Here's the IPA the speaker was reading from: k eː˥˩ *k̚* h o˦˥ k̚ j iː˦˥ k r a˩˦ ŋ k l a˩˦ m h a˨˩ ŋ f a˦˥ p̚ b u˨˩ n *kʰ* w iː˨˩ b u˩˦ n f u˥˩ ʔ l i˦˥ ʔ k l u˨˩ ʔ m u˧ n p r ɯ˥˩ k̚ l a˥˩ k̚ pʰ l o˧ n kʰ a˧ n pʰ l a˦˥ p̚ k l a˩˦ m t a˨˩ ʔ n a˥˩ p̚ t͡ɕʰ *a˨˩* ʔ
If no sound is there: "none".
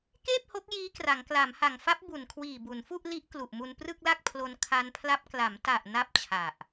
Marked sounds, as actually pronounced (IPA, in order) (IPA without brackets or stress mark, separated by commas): p̚, kʰ, a˨˩